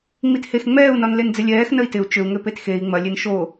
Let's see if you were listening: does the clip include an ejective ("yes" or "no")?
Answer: no